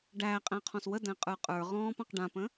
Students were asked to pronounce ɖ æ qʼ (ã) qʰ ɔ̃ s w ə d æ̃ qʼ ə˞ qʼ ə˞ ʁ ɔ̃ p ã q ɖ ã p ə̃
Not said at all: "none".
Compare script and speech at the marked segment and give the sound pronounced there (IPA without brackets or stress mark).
æ̃